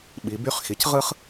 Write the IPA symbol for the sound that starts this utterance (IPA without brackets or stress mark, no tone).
ɓ